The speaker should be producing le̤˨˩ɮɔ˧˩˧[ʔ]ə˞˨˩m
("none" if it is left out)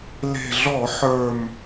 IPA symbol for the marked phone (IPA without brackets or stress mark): ħ